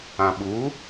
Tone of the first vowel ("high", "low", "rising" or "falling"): low